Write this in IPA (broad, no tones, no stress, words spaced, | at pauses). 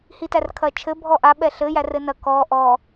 hitærkʰɐt͡ʃʰɘ bʱɔʔaɓɛ ɬɘ jærɘnɐ kɔ ʔɔ